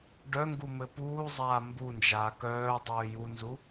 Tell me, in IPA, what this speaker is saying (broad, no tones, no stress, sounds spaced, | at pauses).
ɖ œ ŋ ɡ u m ɘ p uː zˤ aː m b u n d͡ʒ aː k œː dˤ œː j u n z u